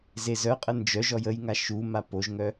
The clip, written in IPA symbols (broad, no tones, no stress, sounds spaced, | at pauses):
z e z œ qʼ ə n d͡ʒ œ ʒ ɔ j ə j ŋ a ʃ u m a p o ʒ ŋ œ